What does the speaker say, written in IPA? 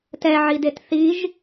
t ɛ ʕ i d e t θ i ʒ

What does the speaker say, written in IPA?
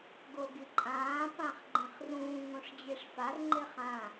ɡ o ɡ i ǃʼ ãː p ã χ ɡ͡ǃ ẽ χ r ũː ŋ õ ʂ d͡ʑ e ʂ f a r ŋ͡ǃ e χ ã

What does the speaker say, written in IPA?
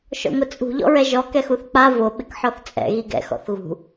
ʃ ɔ̰ ŋʷ ɪ t͡sʼ ṳ ʎ ɔ̰ ɹ ɛ ʒ ɔ k ɛ x u θ k͡p a v o ɓ ɪ k ħ ɔ θ t͡sʼ ɛ̰ ɣ i ɡ ɛ̰ x ɔ̰ θ ɣ ṳ

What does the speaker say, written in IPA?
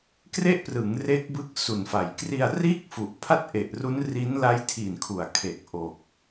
k r e˥˩ ʔ p r ɯ˩˦ ŋ r e˦˥ k̚ b ɯ˦˥ k̚ s u˨˩ n f a˩˦ j k r i˧ a̯ r iː˥˩ k̚ f u˨˩ ʔ pʰ a˥˩ t̚ ʔ e˨˩ ʔ r u˦˥ n r i˦˥ n l a˦˥ j tʰ i˨˩ n kʰ u˨˩ a̯ kʰ e˨˩ k̚ ʔ o˨˩ k̚

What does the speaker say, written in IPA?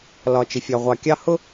l ɒ˨ t͡ʃ ɪ˨ fʲ ɑ˨ ʁʷ ɑ˨ kʲ ɑ˦ h ʊ˦

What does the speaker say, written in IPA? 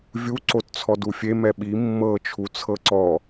vʲ u ǀ o t t͡sʰ ɔ d u fʲ e m ɛ ɓ i mː ɤ t͡ʃʰ u t͡sʰ ɤ ǀ ɔ

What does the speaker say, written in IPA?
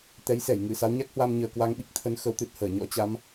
t̪ ɛ˨˦ j s ɛ˧˩ j ŋ ɨ˧˩ s a˨˦ w ɲ a˦˥ k̚ h w a˧ m ɲ əː˨˩ k w a˧ ŋ ɓ i˦˥ k̚ t̪ʰ ə˨˦ n x ə˨˦ w t̪ ɨ˨˩ t̚ h əː˧˩ ɲ ɔ̰˧˥ t͡ɕ a˨˦ m

